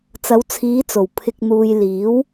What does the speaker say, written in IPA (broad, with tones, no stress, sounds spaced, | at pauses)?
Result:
t͡s ɐ˨˧ w t͡sʰ iː˨˧ t͡s o˨˩ w pʰ ɪ˨ k̚ n̪ uː˨ j l iː˨˥ w